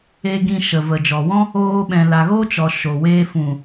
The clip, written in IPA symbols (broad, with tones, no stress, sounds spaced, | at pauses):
e˧ ɡ ĩ˧ ʃ ə˨ v ə˨ d͡ʒ ɔ˨ w ɔ̃˦ | oː˧ ɓ ɛ̃˨ l a˨ ɣ o˦ t͡ʃ ɔ˨ ʃ o˨ w eː˧ f ũ˨